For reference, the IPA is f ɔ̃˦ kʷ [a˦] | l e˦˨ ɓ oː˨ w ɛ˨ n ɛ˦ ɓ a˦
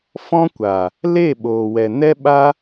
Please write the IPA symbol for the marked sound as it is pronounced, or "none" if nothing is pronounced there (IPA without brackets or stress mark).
a˨